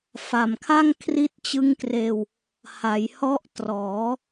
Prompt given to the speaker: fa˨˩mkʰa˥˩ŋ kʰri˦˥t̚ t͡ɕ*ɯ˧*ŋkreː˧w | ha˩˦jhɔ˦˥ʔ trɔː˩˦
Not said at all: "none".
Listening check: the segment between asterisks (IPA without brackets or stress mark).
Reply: ɯ˦˥